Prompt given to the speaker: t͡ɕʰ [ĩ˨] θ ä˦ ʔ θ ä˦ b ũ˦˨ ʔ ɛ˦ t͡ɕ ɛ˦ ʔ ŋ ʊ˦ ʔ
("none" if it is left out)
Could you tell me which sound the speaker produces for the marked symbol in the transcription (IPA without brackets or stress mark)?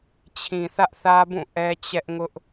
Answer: ĩ˨